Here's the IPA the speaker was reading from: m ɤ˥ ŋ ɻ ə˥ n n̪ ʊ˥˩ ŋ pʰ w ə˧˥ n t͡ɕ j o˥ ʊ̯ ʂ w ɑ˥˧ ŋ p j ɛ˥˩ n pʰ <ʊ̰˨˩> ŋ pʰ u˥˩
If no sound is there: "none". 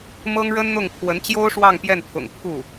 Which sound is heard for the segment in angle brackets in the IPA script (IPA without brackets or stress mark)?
ʊ̰˨˩